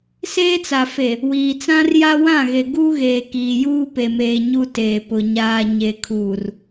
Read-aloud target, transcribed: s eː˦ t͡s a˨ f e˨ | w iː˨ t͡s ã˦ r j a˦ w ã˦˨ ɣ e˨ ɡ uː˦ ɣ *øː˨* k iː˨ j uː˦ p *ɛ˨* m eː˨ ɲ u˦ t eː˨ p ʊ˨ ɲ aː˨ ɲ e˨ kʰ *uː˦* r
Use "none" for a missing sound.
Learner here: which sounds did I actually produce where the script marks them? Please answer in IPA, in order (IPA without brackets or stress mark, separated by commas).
eː˨, e˨, uː˨